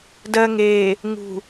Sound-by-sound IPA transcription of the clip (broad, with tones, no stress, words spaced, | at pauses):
dɜ˨ ŋeː˨ | ŋṳ˨